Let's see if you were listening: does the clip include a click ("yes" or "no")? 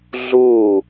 no